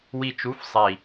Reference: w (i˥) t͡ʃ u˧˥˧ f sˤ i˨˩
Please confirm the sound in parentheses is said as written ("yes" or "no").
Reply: no